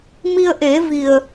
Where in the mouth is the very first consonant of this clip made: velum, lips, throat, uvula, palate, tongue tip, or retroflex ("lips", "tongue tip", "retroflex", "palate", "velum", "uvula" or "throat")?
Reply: lips